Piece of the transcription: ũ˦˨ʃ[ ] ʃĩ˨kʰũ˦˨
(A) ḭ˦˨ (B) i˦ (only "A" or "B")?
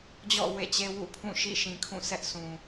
A